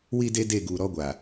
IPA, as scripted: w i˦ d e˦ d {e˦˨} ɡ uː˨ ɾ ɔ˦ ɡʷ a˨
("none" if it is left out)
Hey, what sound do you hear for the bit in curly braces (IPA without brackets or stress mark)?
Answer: e˦˨